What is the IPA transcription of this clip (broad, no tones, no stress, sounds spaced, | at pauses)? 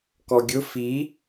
k ɔ ɡʲ ʊ f i